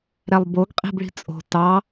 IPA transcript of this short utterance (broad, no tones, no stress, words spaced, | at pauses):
ɾælˠboɡ qʼi̤bɭi̤t͡sʼo̤ tɑ